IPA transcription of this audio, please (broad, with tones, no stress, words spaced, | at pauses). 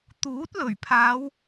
t̪uː˨˥t̚lɵ˨˩ɥpʰaː˨˧w